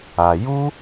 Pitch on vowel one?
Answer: low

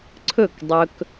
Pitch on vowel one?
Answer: falling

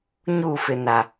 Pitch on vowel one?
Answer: falling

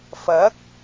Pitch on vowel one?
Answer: rising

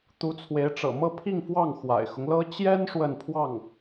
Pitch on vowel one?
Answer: rising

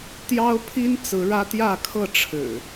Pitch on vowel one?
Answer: high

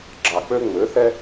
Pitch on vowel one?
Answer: low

